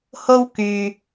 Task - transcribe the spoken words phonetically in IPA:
ho˥wkyː˧

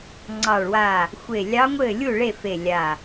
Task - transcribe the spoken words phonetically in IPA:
ŋ͡ǀɑ˧˩ɭwa˧˩ | xʷe˧˩lʲɑ˧˥ŋʷɘ˥˩lʲu˥˩ ɭe˥˩fe˧˩ lʲa˧˩

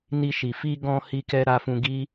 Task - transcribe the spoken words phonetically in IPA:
ni˧ʃi˨ fi˧ɡɔ̃˧ hi˧kɛ˧ ɾa˧fũ˧ɡi˦

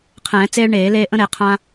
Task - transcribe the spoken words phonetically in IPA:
qʰɛ̃ː˨˩˦ t͡seː˦ɭɳeː˨˩˦leː˦ ʔə̃˦ɾe˨˩˦ qʰã˦

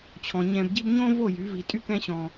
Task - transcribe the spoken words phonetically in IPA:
t͡ɕʰɔ̃˨ɲɛ̃˧bɟi˦b ɲõ˦vo˦˨jy˨˦ vi˧tʼy˦kɛ̃˦ɕɔ̃˧

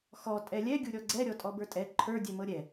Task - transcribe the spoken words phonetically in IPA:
xɔ tʼɛlʲɛ ɡʲuɾʲɔɡ͡ǀɛ ɾʲɔtʼɔbə˞tʼɛ ǃʰə˞ dʲɛmɤɾʲɛ

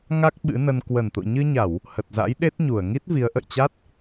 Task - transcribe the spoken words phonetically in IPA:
ŋa˦˥k̚ ɓɨ̰˧˥nə˧n kwə˨˩nt̪o̰˧˨ ɲɨ˧ɲa˧˩˨w | hə˨˩t̚za̰˧˥jɗe˦˥t̚ɲu˧˩ə̯ ŋi˦˥t̚vi˨˦ə̯ʔə̰˧˨jt͡ɕa˦˥t̚

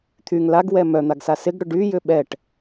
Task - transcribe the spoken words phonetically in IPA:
t̪ʰyŋ laɡwɛ mœn̪aɡsa sɪɡɽʏ ɖyjʏ ɓɛʈ

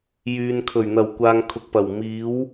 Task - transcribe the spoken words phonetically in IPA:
jyː˨nkʰɵ˨˩ɥ n̪ɐ˨˩wkʷaː˨ŋ kʰʊ˨k̚pɐ˨˩w miː˨˥w

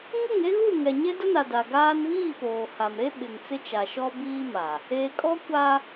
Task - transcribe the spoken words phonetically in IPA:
ŋʊ˦˨ŋe˦ɣu˦˨ŋɛ˨ ɲe˦dʊ˦na˨ da˨ɡaː˦n βiː˦˨poː˨ha˨mɾe˦ ɓɪ˨ŋt͡sɪ˦t͡ʃa˨ ʃɔ˦biː˦ma˨ | eː˨kʼɔ˦kʷa˦

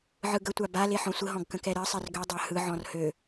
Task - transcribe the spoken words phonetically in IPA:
ʕɯɡətʷa ba leħɔ̃sʷəɦɔ̃ɡ kə̃kɛɾɜsˤɜr ɡødˤa hɯʕɔ̃r hø

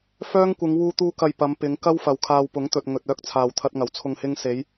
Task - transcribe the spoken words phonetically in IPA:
fœː˥ŋ kʷɪ˨˧ŋ wuː˧t̪uː˧kɐ˨j pɐ˨˧mpɪ˨˧ŋkɐ˥w fɐ˨wkʰaː˧wpʊ˨˥ŋt̪ɵ˨t̚ ŋɵ˨t̚œː˧k̚t͡sʰaː˨w t̪ʰɐ˧t̚ŋɐ˨˩w t͡sʰʊ˨ŋhɪ˧ŋse˨˧j

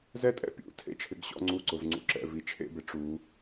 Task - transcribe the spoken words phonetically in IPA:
zɛ˥˧tʼɛ̰˥˧ pʲṵ˥˧ tʰḛ˥˧t͡ʃʰɪ˨˦ɡɕɔ̰˥˧ ŋ͡ǀu˥˧ǀʊ˨˦vŋ͡ǀṵ˥˧ǁɛ̰˥˧ vi˨˦t͡ʃʰḛ˥˧bɪ˨˦ ʈ͡ʂu˨˦

